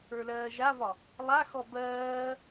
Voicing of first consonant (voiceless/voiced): voiced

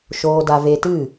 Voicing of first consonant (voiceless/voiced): voiceless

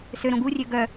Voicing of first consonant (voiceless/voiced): voiceless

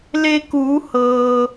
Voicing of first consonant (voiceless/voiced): voiced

